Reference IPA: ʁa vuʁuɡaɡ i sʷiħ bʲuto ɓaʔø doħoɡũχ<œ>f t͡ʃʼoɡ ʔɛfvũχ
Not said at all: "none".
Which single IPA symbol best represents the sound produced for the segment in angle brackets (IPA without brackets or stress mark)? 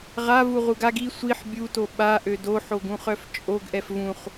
œ